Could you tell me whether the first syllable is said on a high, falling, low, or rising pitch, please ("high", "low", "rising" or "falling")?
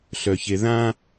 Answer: low